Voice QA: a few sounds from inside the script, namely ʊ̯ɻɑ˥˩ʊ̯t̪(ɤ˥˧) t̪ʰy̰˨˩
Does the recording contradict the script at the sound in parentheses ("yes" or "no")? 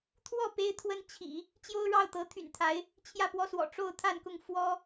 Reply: yes